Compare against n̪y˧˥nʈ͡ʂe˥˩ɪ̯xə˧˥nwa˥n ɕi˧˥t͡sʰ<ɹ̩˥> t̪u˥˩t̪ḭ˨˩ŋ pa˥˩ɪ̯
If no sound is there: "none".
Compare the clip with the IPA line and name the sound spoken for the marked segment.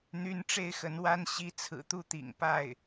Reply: ɹ̩˨˩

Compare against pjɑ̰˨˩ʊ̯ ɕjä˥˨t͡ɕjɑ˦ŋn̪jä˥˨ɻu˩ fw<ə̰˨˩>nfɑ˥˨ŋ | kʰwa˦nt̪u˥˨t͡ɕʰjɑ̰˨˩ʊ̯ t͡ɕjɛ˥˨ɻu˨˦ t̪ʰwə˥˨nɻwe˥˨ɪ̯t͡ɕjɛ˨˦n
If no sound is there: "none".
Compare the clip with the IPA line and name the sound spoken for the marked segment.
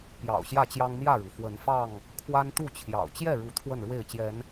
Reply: ə˨˦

